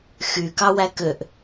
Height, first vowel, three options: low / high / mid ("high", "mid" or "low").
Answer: high